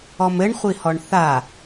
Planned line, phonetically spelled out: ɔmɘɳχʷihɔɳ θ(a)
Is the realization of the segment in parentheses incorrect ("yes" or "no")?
no